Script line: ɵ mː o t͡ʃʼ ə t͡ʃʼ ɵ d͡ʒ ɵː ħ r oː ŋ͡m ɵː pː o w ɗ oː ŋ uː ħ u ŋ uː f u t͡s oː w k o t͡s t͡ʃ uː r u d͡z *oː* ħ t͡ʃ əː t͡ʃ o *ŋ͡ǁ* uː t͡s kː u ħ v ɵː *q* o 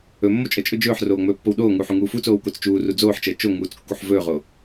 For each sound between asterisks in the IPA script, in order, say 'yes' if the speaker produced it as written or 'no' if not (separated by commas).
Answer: yes, no, no